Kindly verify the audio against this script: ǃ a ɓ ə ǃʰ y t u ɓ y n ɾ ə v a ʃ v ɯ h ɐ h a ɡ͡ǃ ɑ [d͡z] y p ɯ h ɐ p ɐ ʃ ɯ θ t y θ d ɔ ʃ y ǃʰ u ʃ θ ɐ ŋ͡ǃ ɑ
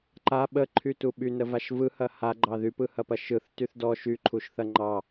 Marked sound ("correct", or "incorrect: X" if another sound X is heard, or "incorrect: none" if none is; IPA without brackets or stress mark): incorrect: ð